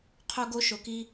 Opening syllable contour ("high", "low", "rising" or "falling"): high